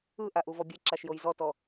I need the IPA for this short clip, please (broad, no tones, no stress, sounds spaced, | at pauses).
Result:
ɯ ʔ a ʔ u v ɔ bʲ e ǁ a ʃ j o j z ɔ t ɔ